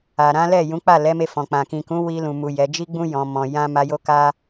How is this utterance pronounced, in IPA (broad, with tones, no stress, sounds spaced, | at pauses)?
a˨ ɾ ã˨˦ l ɛ˦˨ j ũ˨˦ k͡p a˦˨ l ɛ˨˦ m e˧ f ɔ̃˨ k͡p ã˨ k ĩ˨ k ũ˨˦ w i˧ l ũ˨ m u˨ j ɛ˨˦ d͡ʒ i˦ ɡ͡b ũ˦ j ɔ̃˧ m ɔ̃˧ j ã˦ m a˧ j o˦ k a˦